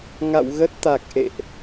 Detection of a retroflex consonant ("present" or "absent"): absent